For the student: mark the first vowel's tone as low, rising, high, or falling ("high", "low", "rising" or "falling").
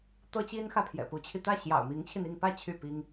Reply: high